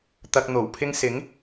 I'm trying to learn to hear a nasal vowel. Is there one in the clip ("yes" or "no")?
no